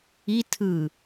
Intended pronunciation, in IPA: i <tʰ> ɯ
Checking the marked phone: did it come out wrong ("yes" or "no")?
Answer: no